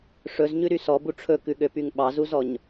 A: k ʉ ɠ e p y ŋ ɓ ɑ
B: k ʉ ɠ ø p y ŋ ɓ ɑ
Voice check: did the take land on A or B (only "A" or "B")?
B